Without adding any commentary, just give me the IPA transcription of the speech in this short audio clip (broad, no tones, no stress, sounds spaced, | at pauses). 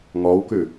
ŋ ɔ w k ʉ